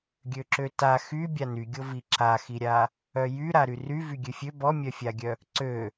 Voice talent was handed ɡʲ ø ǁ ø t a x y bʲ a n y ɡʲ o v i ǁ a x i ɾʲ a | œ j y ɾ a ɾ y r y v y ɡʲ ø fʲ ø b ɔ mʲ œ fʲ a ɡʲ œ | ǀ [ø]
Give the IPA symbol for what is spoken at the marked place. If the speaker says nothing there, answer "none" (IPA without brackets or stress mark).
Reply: ø